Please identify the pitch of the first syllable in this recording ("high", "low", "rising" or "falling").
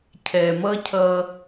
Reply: low